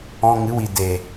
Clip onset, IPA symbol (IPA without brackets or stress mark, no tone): ɔ̃